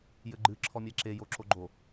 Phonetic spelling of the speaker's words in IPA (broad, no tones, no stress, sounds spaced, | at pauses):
j ɘ ɡ͡ǃ ɨ ǁʰ ɔ mʲ ɛ ǁ e j o ǁ o ɡ͡ǃ o